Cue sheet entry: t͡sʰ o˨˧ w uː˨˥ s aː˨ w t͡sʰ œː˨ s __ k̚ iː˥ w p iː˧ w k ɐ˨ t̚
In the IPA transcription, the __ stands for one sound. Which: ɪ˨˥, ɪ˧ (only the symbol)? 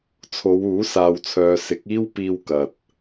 ɪ˨˥